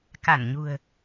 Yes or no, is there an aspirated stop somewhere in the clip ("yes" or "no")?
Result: no